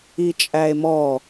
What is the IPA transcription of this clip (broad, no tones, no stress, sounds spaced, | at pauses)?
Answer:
i t͡ʃʼ æ e̯ m ɔ